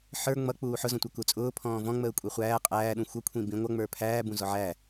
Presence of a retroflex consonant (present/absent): absent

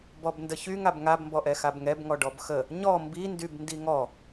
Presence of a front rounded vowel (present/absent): present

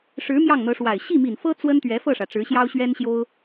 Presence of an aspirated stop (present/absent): absent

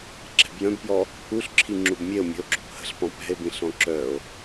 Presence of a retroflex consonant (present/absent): absent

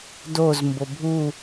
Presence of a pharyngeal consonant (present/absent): absent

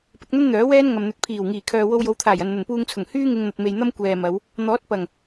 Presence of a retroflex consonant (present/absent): absent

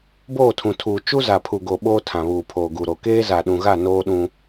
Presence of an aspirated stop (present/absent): present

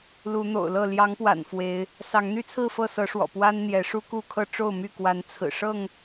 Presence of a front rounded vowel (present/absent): present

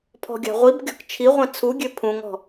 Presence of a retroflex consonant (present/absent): absent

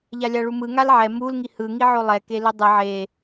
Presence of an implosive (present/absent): absent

